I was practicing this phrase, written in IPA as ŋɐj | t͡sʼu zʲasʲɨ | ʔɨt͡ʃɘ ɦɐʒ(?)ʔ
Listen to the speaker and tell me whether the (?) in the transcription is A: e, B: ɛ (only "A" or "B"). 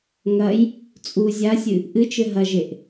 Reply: A